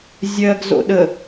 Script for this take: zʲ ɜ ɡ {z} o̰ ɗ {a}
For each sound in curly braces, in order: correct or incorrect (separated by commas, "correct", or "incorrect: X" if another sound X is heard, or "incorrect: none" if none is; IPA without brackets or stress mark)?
correct, incorrect: ə